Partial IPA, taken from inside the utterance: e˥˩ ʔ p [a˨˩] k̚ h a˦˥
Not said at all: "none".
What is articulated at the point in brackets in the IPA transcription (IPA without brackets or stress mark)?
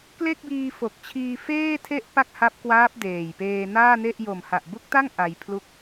a˥˩